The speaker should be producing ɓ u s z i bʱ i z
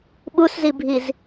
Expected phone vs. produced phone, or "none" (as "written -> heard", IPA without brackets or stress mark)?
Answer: none